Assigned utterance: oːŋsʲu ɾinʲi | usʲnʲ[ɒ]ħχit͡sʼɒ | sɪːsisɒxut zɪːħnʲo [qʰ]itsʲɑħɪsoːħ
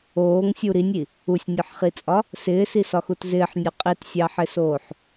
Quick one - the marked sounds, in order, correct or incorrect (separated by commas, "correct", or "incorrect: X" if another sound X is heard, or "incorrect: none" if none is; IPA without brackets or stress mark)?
correct, incorrect: qʼ